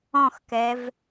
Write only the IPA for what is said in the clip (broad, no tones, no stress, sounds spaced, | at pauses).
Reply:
ɔ̃ x k ɛ v